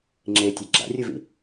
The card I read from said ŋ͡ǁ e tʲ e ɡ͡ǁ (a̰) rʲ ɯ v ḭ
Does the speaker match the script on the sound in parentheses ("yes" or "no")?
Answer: yes